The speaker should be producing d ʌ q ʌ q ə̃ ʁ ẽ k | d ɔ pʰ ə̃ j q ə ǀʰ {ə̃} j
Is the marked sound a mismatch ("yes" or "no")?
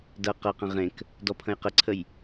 yes